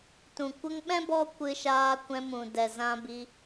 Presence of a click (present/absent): absent